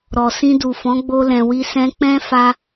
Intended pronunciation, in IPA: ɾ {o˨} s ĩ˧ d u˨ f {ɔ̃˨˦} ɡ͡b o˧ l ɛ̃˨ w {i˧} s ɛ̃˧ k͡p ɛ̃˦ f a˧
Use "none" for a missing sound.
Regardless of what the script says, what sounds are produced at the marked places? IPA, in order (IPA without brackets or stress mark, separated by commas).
ɔ˨, ɔ̃˨˦, i˧